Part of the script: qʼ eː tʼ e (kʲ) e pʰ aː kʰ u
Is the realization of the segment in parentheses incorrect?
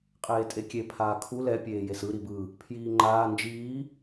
no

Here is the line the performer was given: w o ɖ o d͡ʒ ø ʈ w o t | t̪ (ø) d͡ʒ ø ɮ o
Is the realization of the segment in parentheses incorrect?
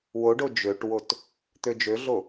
no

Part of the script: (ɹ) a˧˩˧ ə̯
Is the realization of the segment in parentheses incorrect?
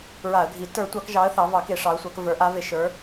no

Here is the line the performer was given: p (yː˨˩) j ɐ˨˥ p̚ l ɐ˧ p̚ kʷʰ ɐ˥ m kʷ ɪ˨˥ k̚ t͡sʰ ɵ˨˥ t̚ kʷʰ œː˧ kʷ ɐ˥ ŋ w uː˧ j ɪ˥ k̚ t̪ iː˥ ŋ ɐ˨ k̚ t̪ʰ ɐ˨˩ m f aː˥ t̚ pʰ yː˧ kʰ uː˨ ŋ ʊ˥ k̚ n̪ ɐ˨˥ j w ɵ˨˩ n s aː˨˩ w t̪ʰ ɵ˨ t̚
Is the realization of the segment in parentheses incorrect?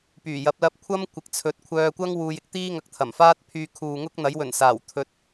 no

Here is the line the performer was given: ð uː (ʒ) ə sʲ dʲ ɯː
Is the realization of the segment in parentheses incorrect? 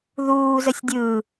yes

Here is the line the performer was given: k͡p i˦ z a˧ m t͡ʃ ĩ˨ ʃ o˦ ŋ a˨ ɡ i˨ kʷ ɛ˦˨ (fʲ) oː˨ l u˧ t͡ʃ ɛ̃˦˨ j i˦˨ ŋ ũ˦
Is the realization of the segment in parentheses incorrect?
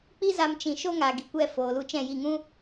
yes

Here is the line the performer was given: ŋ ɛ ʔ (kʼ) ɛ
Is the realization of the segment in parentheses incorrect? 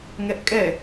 no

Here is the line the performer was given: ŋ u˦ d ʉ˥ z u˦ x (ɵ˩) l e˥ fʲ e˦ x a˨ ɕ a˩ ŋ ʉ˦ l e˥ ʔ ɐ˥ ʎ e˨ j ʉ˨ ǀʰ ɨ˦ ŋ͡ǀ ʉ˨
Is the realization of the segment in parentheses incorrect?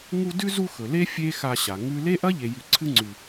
no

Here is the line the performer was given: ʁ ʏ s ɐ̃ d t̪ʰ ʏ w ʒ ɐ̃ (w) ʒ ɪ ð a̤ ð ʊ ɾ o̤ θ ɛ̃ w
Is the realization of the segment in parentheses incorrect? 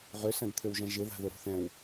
yes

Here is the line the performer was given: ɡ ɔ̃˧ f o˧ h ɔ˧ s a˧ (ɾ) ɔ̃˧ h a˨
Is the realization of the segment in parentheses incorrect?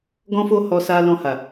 yes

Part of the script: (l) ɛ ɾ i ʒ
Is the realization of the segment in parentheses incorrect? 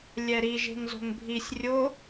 yes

